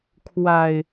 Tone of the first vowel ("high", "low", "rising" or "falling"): low